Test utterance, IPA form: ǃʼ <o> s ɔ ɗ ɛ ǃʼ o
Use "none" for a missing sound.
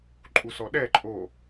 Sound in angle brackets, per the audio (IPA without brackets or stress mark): u